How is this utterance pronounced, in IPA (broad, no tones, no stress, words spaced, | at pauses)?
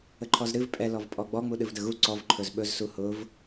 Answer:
əǃʰɔzɾɨv pʼɛ lɔvpʼɔɡ͡bɔ ŋ͡muɗɨvdəɣu ǀɔv ǃʰɵzɓɵz suhʊv